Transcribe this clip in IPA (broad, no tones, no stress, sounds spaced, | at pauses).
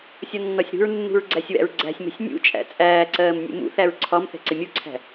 sʲ ɒ nː ɒ sʲ ɾ ṳ ɹ nː ṳ ɹ ɡ͡ǀ æ sʲ w æ̰ ɹ ɡ͡ǀ æ̤ sʲ m ɛ̤ sʲ nʲ ṵ t͡ʃʼ æ̰ t͡sʼ æː ǀ ɜː m nʲ ṵ m ṵ θ æ ɹ ǀʰ ɒ m θ ɛ̤ ǀ ɪ mʲ u ǀʰ æ̤